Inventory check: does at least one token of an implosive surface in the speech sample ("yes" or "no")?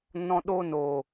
yes